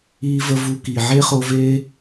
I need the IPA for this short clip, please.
iː˦və˦ vu˧ki˨ ʕe˦χo˧ve˦

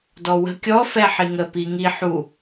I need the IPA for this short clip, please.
dɔwə̤ kʲɔ fɛħiŋə piŋi ħu

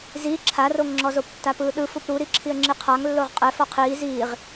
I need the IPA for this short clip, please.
zi ǁʰaroŋŋ͡ǁɔzop tːapɯːɗɯ fupɾuɾiǁʰiə̯ ŋ͡ǁiqʰaŋ lːoʁqʼɛ fɔqʰiː ziːʁ

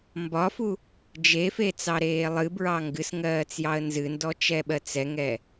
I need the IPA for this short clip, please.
mbɒfu | d͡ʒefe t͡sɑɾeːlˠɨbɹɑ ŋɡɨsŋɜːt͡s jɑə̯nzɨndɔ t͡ʃɛɓɜt͡sɛŋɛ

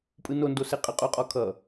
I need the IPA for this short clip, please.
pʼɯnondo seqʼə qʼuqʼɔkʰʌ

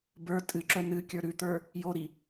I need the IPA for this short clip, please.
bə˞ tʼɨǁœ nɨkʲə˞ ɾʉt̪ə˞ | joɾi

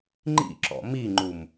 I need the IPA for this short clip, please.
ŋ͡ǃḭǁɔ̰ miŋ͡ǃum

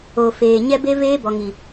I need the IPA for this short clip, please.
o˨feː˨ ɲɛ˦be˦ veː˦bɔ˨ŋi˨

